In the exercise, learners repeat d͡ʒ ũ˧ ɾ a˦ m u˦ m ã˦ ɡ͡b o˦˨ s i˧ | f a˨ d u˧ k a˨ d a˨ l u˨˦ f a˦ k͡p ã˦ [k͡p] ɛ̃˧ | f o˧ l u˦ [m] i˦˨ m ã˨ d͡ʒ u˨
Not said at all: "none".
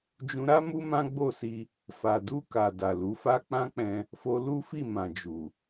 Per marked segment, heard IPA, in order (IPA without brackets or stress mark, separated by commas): k͡p, f